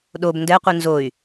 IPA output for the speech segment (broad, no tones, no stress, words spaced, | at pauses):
ɗob ndɛqʷi nzoy̯